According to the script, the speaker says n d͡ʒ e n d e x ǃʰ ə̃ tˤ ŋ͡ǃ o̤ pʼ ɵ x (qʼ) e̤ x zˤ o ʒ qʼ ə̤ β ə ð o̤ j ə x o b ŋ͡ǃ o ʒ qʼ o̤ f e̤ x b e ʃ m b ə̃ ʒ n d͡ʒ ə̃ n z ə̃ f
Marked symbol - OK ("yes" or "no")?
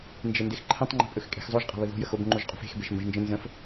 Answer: no